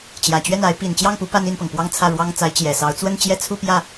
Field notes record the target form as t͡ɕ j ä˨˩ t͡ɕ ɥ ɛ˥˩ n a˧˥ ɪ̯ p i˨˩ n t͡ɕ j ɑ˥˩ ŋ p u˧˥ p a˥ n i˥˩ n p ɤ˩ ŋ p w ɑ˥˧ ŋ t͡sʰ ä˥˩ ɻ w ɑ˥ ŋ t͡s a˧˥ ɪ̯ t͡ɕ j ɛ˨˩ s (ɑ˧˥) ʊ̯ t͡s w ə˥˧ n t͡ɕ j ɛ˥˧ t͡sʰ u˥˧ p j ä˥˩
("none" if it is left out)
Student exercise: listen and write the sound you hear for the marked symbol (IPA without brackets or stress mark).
ɑ˧˥